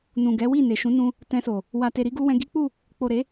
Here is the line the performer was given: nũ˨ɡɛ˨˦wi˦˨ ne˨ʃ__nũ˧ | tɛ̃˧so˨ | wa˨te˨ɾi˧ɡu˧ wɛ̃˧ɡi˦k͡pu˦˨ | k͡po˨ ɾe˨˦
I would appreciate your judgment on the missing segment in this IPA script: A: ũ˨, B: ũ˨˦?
B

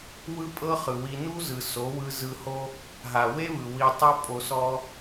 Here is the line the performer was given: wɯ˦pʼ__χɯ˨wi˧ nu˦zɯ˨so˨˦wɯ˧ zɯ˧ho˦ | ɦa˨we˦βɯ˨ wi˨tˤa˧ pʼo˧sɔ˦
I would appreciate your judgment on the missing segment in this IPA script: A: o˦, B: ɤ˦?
B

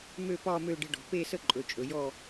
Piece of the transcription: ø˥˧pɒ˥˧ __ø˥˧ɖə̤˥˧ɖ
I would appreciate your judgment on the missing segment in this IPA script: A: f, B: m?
B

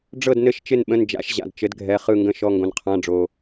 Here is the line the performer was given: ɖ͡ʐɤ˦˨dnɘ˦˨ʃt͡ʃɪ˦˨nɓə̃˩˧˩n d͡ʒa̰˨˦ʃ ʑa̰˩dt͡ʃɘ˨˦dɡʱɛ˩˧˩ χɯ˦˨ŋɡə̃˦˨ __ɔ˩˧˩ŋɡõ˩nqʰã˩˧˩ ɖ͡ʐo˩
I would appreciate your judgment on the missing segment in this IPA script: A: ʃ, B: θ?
A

